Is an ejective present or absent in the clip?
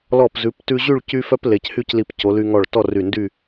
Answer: absent